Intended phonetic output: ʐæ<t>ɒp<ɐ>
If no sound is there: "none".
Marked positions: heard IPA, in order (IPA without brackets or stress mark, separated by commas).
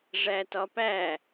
t, æ